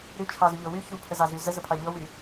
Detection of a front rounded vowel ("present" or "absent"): present